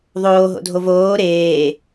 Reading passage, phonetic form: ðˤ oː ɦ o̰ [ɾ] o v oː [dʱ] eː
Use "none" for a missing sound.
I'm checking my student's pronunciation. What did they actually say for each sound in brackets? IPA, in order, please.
dʱ, ɾ

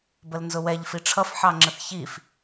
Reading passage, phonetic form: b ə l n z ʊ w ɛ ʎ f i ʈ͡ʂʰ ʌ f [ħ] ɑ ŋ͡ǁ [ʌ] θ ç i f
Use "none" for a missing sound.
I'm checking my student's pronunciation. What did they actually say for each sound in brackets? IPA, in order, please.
ħ, ə

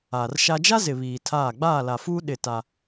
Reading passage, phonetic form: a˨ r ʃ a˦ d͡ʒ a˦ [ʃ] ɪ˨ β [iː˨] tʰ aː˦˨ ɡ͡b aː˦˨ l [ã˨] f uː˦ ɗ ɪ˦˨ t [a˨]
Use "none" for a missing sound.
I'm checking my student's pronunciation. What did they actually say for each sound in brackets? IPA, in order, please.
z, iː˨, a˨, a˦

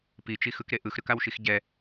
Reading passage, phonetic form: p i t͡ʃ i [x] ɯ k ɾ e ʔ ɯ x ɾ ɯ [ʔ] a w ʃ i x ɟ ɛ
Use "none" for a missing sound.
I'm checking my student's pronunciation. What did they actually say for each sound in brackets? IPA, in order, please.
x, k

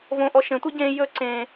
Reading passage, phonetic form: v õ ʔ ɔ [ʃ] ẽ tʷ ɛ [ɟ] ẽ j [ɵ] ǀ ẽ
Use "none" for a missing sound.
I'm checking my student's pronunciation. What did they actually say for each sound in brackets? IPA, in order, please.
ʃ, ɟ, ɵ

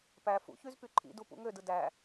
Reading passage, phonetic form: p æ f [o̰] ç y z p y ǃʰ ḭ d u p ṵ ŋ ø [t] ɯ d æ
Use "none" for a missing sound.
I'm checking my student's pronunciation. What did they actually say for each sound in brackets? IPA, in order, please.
ṵ, d

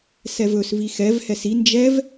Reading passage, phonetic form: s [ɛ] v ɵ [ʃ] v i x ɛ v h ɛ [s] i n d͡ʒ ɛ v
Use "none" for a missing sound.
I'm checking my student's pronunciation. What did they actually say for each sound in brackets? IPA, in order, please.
ɛ, s, s

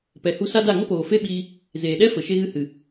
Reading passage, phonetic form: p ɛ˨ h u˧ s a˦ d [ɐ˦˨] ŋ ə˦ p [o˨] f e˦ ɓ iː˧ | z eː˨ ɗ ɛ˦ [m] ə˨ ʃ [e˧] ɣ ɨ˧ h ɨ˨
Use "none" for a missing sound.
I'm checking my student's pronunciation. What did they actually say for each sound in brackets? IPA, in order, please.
a˦˨, oː˨, f, e˧

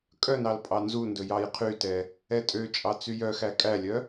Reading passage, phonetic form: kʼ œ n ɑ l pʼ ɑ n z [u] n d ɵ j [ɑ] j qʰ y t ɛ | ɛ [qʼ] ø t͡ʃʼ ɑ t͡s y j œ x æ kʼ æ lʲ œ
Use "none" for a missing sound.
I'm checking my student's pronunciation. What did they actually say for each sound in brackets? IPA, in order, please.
u, ɑ, tʼ

